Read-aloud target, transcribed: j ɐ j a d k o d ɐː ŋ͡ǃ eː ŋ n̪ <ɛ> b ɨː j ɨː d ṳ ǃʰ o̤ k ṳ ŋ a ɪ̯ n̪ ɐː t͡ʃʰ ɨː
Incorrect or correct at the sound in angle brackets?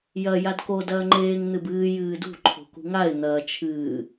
incorrect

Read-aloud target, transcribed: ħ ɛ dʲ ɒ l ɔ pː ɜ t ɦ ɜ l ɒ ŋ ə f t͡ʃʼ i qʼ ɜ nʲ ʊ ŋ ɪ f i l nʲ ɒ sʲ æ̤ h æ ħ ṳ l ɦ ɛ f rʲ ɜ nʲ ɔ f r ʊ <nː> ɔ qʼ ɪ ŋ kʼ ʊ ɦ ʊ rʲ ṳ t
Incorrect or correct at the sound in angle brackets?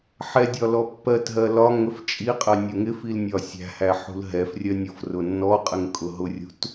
correct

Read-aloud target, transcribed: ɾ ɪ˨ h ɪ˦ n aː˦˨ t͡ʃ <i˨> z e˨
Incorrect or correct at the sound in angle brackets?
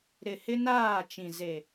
incorrect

